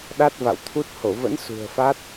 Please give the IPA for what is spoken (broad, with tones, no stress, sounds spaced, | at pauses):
ɗ a˦˥ t̚ v a̰˧˨ w t̪ʰ u˦˥ t̚ h o˧˩ v ə̰˧˥ n s ṳ˨˩ ə̯ f a˦˥ t̚